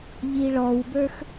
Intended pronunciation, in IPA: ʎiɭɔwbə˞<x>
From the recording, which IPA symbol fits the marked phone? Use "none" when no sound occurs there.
x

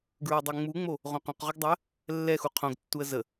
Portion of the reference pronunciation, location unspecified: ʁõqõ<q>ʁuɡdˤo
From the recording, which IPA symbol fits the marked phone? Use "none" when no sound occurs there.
q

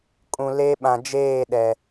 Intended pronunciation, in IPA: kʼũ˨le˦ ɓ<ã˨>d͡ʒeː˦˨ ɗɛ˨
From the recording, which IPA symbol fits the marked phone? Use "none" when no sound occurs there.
ã˨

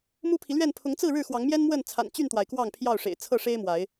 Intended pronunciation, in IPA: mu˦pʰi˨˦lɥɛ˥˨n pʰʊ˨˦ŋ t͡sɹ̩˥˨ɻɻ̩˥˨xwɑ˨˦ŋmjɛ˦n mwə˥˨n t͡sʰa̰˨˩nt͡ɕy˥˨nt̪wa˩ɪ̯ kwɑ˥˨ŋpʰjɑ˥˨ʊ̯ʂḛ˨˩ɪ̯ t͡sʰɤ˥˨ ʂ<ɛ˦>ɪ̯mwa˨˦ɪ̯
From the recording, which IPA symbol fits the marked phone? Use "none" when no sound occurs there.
e˦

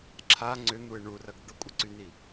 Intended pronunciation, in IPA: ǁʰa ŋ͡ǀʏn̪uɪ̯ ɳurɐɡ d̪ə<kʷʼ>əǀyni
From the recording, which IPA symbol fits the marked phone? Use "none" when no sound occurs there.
kʷʼ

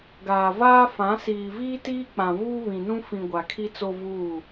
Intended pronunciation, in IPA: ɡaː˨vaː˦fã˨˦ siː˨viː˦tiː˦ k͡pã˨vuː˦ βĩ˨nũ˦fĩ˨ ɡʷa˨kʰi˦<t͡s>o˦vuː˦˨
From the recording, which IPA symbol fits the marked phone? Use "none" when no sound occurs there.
t͡s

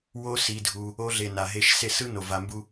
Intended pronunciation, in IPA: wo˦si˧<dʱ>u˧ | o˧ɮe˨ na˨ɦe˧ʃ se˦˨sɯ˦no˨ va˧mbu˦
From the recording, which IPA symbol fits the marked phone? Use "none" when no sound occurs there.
dʱ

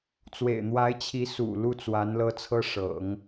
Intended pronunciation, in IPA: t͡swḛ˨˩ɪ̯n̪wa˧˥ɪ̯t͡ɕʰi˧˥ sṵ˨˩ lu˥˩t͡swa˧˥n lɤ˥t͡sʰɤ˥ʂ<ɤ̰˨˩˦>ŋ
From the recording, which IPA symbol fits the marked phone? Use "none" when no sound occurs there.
ɤ̰˨˩˦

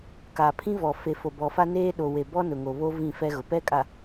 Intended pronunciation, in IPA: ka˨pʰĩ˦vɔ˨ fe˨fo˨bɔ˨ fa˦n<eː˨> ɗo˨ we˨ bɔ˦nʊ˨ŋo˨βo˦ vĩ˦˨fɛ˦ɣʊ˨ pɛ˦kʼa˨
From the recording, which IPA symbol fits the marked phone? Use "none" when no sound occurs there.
eː˦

